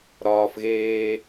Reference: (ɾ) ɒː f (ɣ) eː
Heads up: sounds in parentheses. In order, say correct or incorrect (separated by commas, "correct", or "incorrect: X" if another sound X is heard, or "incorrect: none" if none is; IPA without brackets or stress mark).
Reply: correct, correct